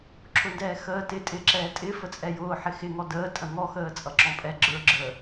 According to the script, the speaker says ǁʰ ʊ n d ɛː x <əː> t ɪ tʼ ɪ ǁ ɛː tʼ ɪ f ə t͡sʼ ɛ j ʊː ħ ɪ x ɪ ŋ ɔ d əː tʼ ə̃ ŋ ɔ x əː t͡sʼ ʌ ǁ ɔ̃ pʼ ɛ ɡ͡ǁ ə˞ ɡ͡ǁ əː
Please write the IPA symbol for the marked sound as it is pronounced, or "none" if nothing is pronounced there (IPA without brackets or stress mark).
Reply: əː